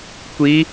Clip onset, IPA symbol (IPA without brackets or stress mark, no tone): kʷ